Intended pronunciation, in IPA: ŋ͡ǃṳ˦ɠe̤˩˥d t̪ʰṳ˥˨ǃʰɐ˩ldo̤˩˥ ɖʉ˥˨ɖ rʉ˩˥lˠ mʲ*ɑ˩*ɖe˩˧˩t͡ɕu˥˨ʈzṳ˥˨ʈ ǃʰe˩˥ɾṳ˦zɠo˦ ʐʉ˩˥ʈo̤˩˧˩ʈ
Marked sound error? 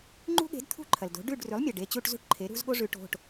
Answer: yes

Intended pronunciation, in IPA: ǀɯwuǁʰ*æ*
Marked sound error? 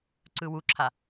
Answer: yes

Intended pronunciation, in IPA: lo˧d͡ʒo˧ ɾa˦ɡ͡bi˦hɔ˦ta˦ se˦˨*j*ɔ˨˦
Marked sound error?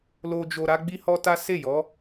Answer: no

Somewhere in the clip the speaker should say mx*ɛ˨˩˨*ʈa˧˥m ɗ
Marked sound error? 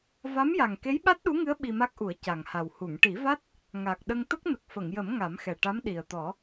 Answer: yes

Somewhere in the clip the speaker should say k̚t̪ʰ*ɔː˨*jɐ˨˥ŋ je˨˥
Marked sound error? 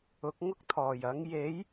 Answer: yes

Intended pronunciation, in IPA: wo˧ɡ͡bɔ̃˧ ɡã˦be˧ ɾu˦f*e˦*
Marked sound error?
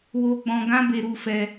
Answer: yes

